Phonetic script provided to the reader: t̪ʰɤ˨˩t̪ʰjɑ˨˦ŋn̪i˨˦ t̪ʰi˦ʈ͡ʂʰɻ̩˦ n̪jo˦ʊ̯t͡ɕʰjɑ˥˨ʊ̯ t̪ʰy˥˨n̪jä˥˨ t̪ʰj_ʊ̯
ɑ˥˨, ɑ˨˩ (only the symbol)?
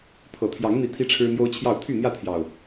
ɑ˨˩